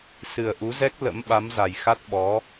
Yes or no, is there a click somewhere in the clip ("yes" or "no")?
no